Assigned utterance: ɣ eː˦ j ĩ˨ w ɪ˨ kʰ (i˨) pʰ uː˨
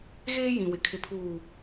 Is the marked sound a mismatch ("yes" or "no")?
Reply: yes